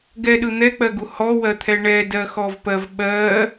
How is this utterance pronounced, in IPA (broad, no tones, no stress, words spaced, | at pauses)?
ɡɛɗɯ n̪ɛk͡pɜɡu hɔwɜt̪ʰɛ ɳɛdɜxɔvpɜv ɓɜ